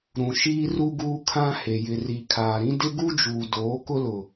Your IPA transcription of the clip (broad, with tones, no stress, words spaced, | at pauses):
ɾũ˨ʃiː˦ru˦ ɡuː˦kʰã˦he˨ jɪ˨ri˨kʰaː˨ɾĩ˦ dɪ˦ɡu˦d͡ʒuː˨doː˨˦ kʊ˦lʊ˨